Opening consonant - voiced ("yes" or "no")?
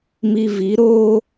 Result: yes